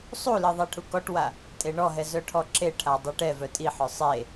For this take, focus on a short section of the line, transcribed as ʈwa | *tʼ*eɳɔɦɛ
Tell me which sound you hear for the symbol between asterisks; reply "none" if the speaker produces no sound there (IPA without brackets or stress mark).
tʼ